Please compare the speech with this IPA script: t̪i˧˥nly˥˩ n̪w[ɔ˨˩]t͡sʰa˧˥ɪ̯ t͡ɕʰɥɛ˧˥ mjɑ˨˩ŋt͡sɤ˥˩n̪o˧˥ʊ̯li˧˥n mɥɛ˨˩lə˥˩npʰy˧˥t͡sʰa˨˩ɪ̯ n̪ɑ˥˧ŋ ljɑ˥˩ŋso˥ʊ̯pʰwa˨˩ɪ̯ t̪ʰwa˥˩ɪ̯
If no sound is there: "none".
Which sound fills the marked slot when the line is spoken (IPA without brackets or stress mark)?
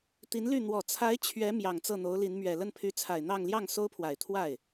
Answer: ɔ˨˩